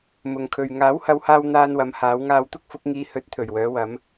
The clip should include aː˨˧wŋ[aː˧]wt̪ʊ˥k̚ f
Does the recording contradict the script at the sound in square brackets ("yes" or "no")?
no